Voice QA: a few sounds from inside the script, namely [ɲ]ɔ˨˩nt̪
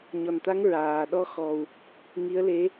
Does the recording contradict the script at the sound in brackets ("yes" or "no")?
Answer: no